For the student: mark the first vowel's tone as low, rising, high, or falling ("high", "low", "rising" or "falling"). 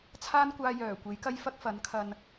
high